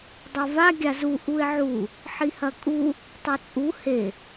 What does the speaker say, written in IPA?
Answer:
dˤ o v a ɡʲ a z u ʔ u ɪ̯ ʕ u | ħ i h ɐ kʼ u | tˤ e t͡sʼ u h e

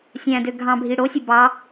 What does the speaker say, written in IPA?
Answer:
sʲ æ̃ d ø ɡʱ ɑ̃ bʱ i ɽ o sʲ ø b ɑ

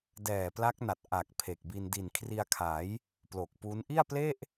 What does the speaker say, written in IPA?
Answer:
d ɛː˨˩ p l a˦˥ k̚ n a˨˩ t̚ ʔ a˨˩ k̚ pʰ e˨˩ k̚ b i˧ n d i˨˩ n kʰ r i˧ a̯ kʰ a˩˦ j | p l o˨˩ k̚ p u˦˥ n ʔ i˥˩ a̯ p l e˥˩ ʔ

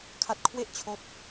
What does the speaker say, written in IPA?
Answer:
kʰ a˥˩ t̚ kʰ w e˥˩ ʔ t͡ɕʰ oː˦˥ t̚

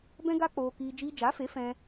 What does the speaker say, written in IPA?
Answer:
b ɛ̃˦ ɡ a˦ k͡p oː˧ k iː˧ d͡ʒ iː˧ d͡ʒ a˨˦ f e˨˦ f ɛ̃˧

